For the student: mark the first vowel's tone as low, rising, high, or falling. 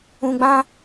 high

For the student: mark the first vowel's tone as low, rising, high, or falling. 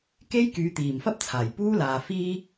high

